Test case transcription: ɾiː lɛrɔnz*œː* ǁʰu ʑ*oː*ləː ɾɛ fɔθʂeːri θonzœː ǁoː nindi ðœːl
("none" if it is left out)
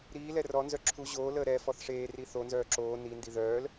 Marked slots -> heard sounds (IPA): œ, oː

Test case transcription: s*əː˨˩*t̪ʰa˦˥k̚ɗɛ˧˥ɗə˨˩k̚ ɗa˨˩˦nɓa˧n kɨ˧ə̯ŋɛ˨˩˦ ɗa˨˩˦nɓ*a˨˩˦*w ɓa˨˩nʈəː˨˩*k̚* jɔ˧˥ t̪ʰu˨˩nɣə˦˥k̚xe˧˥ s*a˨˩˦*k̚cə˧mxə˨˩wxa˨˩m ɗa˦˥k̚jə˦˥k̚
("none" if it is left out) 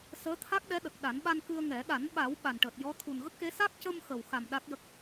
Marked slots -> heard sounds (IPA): əː˧˥, a˨˩˦, t̚, a˦˥

